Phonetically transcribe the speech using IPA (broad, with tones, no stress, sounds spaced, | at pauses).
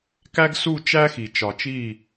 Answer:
k æ˦ ɡ s u˦˨ t͡ʃ æ˦ x i˨ t͡ʃ ɒ˨ t͡ʃ i˦˨